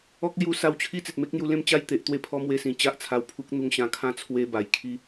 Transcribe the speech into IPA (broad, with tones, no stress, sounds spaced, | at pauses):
ɔ˦ k̚ l j u˧ s a˧ w t͡ɕʰ i˦ t͡s e˨ t̚ m e˦ k̚ n̪ j u˧ l ẽ˥˧ m t͡ɕ a˥˧ j t̪ e˨ ʔ t̪ w e˥˧ pʰ ɔ˦ m w e˧ s ĩ˨˩ t͡ɕ a˦ ʔ t͡sʰ a˧ w pʰ u˦ k̚ n̪ u˧ ŋ ɕ ã˧ kʰ ã˥˧ t͡sʰ w e˧ b a˨˩ j kʰ i˦